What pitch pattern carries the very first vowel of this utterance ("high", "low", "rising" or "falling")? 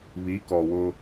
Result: rising